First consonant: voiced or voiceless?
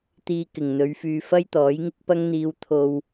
voiceless